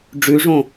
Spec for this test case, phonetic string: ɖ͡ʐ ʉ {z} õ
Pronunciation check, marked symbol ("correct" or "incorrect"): incorrect